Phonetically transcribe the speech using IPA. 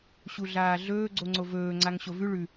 ɕ u ɮ aː ɮ ɵː ɡ͡ǀ o ŋ͡ǀ o v ɵː ŋ͡ǀ a ŋ ɕ o v ʉ ɭ ʉ

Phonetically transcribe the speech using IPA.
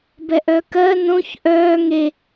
b ɛ ʔ œ k ɜ n õ ç ʔ œː ŋ e

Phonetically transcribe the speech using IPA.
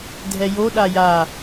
dʱ ɛ j o ɗ a j a

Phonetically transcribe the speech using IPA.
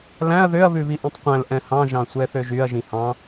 l æ̃ ɐ̯ ð ø ɐ̯ β ʉ β i ʔ ĩ tˤ qʷ æ̃ l ʔ ɛ̃ h ɑ̃ ʒ ɑ̃ sʷ ɛ θ ø ʒ y ɐ̯ ʒ ĩ h ɑ̃

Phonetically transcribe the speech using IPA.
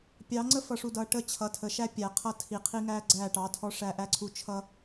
pʲ ɑ˨˦ ŋ͡ǀ ə˦ f ʌ˨ ʂ u˨ d ʌː˨ ʈ ə˦ t͡ɕʰ ʌ˨ tʰ ə˨ ʃ æ˦ pʲ æ˨ qʰ ʌ˦ tʰ i˨ qʰ i˦ ŋ æː˦ ɡ͡ǀ æː˦˨ ʈ ɑ˨˦ tʰ ɔ˦ ʂ æ˦ ʔ æ˦ ǀʰ u˦ t͡ʃʰ ʌ˦

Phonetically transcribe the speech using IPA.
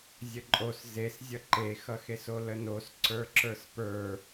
zʲ ə ǃʼ o s z e s zʲ ʌ ǃ e x ʌ x e s o l ə n o s ǀ ə˞ ǁ ə˞ s p ə˞

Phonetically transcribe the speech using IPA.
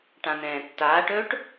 ʈ ã n ɛ̃ː tː aː ʈ ɵː ʈ

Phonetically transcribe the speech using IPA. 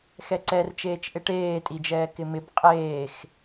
x ɛ ǀ ɛ r t͡ʃ eː t͡ʃ ʔ ɪ ʈ eː tʼ i d͡ʒ ɛː k ɪ m ɪ b qʼ eː x

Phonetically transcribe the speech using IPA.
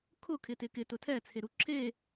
kʰ ʊ kʰ ɪ t ɪ k ɪ t ʊ tʰ ɛ t͡sʰ e ɾ u ǁʰ e

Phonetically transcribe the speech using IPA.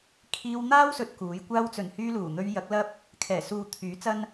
kʰ iː˧ w n̪ aː˥ w s ɵ˨ t̚ k uː˨˥ j kʷ aː˧ w t͡s ɵ˨˩ n h yː˧ l uː˨˩ n̪ ɵ˧ ɥ j ɐ˨˥ k̚ l ɐ˥ p̚ | kʰ ɛː˨˩ s uː˨ t̪ʰ yː˨˥ t͡s ɐ˥ n

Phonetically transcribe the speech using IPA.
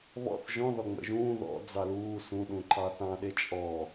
β ɔ̰ θ ʒ ɔ̃ ð ɔ ŋ͡m ə̰ ʒ ũː ð ɔ̰ d͡z ɑ l uː s ũ ɗ ũ ǃ ɑ θ ɑ̃ ɗ e t͡ʃʼ ɔ

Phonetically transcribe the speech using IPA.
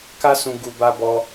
k a˦ s ũ˧ ɡ u˧ b a˧ b ɔ˧

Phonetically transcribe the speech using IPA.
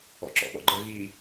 ɔ̰ ǁ ɔ̰ ɓ ɔ̰ ɡ͡ǃ ə ɣ i

